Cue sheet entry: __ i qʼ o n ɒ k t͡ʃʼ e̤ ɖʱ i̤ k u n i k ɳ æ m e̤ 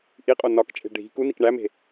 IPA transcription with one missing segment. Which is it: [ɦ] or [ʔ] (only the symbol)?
ʔ